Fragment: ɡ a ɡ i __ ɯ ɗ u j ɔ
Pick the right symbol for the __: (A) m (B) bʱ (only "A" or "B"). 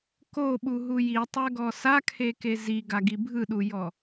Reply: B